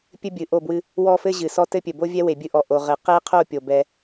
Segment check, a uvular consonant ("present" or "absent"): present